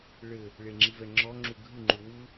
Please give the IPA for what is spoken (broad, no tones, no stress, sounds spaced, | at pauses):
ɭ ɘ | ɭ e ŋ͡ǁ i v ɛ ŋ͡ǁ ɔ ŋ͡ǁ u ɡʱ ɨ ŋ͡ǃ u w u